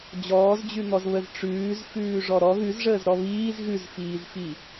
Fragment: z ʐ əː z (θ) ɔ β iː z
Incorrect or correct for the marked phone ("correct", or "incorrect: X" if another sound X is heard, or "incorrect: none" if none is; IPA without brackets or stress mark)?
incorrect: ɾ